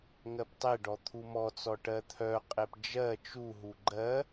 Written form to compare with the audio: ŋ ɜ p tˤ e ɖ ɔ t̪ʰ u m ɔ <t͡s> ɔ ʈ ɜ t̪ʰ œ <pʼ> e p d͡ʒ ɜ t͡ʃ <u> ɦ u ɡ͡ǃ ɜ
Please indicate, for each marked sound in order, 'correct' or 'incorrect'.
correct, incorrect: qʼ, correct

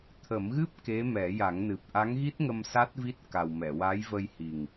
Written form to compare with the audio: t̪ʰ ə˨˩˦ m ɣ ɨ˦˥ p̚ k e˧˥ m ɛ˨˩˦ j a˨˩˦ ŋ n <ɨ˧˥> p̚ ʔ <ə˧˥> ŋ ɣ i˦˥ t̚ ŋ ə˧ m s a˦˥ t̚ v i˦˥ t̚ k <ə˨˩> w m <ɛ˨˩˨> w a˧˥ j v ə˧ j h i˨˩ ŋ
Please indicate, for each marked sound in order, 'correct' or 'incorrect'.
incorrect: ɨ˨˩, incorrect: a˧˥, incorrect: a˨˩, correct

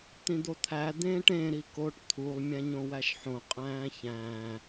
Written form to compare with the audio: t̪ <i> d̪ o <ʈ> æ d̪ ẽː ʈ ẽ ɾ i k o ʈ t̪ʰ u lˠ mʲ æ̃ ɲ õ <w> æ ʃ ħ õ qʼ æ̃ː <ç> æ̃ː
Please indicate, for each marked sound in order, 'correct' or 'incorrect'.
incorrect: ĩ, incorrect: t̪ʰ, correct, correct

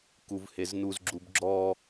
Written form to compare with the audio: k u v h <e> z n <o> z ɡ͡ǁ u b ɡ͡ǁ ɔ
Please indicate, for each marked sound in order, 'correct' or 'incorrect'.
correct, incorrect: u

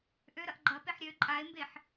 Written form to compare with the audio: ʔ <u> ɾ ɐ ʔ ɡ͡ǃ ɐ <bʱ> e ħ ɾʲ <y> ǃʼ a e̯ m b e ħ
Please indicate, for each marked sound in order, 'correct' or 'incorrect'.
incorrect: ø, incorrect: p, incorrect: ø

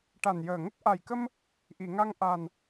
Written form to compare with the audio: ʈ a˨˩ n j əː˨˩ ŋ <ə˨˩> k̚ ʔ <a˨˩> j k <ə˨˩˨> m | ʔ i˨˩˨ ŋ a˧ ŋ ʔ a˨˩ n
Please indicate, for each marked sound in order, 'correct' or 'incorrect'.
incorrect: ə˦˥, correct, incorrect: ə˧

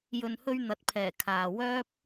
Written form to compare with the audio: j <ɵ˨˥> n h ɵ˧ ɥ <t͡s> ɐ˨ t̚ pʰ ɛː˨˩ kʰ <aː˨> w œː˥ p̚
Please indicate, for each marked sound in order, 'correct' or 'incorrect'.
incorrect: ɵ˨, incorrect: n̪, correct

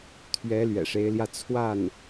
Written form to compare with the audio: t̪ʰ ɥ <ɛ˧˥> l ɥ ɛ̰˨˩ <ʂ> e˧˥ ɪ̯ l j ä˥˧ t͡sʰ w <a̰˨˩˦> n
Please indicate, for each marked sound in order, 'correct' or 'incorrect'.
correct, correct, incorrect: a˥˩

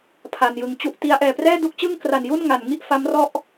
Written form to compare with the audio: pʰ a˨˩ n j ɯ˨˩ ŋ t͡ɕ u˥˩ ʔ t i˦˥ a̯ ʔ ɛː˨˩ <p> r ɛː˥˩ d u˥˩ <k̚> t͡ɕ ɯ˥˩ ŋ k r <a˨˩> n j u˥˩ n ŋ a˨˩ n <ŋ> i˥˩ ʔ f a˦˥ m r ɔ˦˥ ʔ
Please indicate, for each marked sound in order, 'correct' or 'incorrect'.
correct, correct, correct, correct

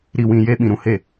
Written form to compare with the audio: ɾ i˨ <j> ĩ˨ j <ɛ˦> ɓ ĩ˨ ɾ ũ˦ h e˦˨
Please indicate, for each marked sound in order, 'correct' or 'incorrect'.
incorrect: w, incorrect: e˦

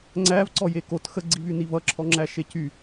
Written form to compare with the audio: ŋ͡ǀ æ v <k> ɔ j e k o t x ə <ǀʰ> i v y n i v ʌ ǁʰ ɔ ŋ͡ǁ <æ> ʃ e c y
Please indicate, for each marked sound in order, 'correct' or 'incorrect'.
incorrect: ǀ, incorrect: ɡ͡ǀ, correct

